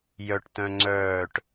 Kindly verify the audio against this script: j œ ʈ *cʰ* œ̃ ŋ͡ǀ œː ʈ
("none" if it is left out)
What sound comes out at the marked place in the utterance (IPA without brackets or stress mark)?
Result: t